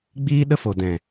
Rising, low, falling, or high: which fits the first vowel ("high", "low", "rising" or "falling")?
high